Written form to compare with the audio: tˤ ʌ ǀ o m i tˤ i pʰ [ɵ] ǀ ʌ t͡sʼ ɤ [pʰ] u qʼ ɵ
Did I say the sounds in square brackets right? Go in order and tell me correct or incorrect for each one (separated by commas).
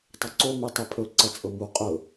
correct, incorrect